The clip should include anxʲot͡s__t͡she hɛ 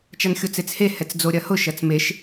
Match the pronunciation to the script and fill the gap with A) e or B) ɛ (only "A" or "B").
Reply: A